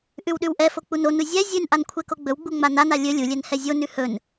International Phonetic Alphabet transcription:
ʔ ʉ w ɗ ʉ w ʔ ɛ f o k͡p u n o n u zʲ ɛ zʲ ʉ n ʔ a n kʷʰ ɛ k o ɡ͡b ɵ w ɡ͡b u ŋ͡m a n a n a lʲ ɵ lʲ u lʲ ɛ n h ɛ zʲ o n ʉ h ɵ n

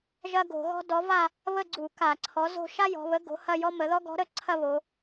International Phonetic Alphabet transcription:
ʒ ɐ˥ ɡ o̤˧˩˧ ɣ ɔ̤˥ d ɔ˨˥ v a˥˧ | β ə˥˧ ɡ͡ǀ u˧˩˧ k a˧˩˧ ǀʰ ɔ˨˥ z o̤˥˧ ʃ a˥ j ɔ̤˩˧ β ə˨˥ ɡ o̤˨˥ h ɐ˥˧ j ɔ˥ m ə˩˧ ð ɔ˥ ɡ ɔ̤˨˥ ɾ ə˥˧ ǀʰ ɐ˥˧ β o˩˧

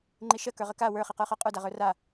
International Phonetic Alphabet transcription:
ŋ͡ǃ i ʃ ə k ə˞ ʁ ə k a w ə˞ χ i q ə˞ χ ə˞ qʼ ə˞ d a ʁ ə˞ r a

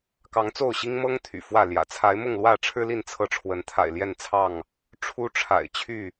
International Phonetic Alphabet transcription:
k ɑ˨˦ ŋ t͡s o˥˨ ʊ̯ ɕ i˦ ŋ m ɤ˦ ŋ t̪ʰ y̰˨˩ f w ä˥˨ l j ä̰˨˩ t͡sʰ a˨˦ ɪ̯ m ʊ˥˨ ŋ l w ä˥˨ ʈ͡ʂʰ ɻ̩˦ l i˥˨ n t͡sʰ ɤ˥˨ ʈ͡ʂʰ w ə˨˦ n t̪ʰ a̰˨˩ ɪ̯ l j ɛ˥˨ n t͡sʰ ɑ˥˨ ŋ | ʈ͡ʂʰ u˦ ʈ͡ʂʰ a̰˨˩ ɪ̯ t͡ɕʰ y˥˨

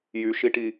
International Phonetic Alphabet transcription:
j y ʃ i ʈ i

